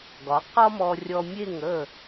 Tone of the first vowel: rising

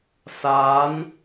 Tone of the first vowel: rising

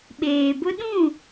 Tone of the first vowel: low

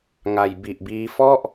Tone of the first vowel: low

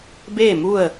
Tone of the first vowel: falling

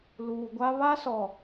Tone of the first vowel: low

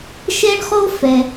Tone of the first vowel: high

